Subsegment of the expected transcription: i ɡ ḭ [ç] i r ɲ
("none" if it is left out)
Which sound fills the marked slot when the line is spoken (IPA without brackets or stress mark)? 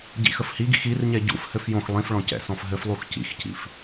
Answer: x